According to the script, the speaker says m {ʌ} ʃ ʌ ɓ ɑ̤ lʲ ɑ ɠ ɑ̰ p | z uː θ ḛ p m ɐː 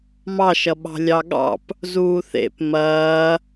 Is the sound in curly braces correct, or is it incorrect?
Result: incorrect: ɑ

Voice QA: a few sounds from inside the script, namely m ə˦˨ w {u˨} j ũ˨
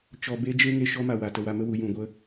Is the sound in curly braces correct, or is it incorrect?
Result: correct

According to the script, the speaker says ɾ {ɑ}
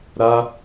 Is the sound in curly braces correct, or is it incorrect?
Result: incorrect: a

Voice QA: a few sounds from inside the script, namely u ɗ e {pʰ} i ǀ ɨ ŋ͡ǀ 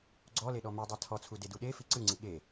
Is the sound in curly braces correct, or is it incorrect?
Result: incorrect: f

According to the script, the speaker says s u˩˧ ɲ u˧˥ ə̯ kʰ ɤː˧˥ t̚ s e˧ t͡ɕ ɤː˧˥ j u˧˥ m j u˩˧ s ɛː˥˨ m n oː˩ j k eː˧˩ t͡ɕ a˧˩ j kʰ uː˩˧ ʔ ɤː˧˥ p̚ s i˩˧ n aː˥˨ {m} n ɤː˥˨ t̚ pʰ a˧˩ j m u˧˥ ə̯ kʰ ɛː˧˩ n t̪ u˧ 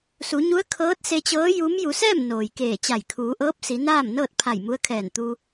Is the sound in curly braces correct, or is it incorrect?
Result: correct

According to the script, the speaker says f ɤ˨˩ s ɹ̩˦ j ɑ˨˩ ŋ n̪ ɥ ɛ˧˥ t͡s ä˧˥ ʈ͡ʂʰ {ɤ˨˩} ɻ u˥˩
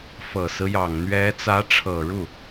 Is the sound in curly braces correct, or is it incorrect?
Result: correct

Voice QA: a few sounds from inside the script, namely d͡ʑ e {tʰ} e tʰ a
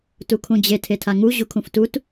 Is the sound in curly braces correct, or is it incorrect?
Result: correct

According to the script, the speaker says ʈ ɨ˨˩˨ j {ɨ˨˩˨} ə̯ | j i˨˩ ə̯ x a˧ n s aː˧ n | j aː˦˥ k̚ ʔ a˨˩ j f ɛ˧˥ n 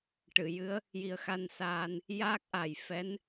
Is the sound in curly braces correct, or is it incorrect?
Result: incorrect: ɨ˧˥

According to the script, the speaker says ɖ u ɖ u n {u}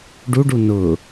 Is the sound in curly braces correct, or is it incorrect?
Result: incorrect: ʊ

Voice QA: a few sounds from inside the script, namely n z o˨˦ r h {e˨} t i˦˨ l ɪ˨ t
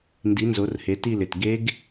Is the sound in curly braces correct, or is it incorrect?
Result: incorrect: e˨˦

